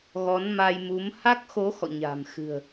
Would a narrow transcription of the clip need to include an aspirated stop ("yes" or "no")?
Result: no